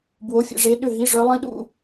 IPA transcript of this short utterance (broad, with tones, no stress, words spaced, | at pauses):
bwo˧˥˧fʲḛ˥˧ʐe˦˥ ɗʏ˥˧ɦi˧˥˧ ʐœ˦˥ lˠĩ˦˥ɗṵ˥˧